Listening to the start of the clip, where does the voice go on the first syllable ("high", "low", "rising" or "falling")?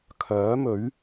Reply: rising